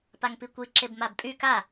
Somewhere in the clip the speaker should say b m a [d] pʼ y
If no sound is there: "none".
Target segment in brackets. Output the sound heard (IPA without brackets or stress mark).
b